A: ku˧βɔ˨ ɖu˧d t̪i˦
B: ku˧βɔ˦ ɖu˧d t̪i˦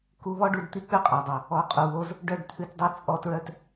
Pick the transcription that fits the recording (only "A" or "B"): B